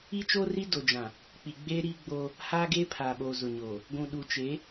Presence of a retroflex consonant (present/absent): absent